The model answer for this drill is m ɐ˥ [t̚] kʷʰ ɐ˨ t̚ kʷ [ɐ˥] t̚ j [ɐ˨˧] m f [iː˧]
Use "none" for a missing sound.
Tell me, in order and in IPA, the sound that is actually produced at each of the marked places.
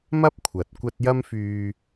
p̚, ɐ˥, ɐ˥, yː˧

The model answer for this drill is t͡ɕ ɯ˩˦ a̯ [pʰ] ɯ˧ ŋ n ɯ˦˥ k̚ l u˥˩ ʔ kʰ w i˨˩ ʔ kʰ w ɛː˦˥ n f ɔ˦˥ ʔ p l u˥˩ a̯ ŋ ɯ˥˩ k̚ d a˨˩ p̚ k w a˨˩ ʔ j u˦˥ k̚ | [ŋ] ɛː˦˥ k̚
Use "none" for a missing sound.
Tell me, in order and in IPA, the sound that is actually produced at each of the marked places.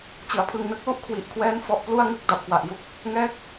pʰ, ŋ

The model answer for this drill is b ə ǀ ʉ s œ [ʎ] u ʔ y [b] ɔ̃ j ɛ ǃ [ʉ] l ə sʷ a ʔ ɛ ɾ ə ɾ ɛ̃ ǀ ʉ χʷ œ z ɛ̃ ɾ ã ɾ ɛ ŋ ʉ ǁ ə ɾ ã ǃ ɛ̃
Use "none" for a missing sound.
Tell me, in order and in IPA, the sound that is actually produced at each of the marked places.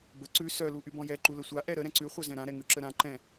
l, b, u

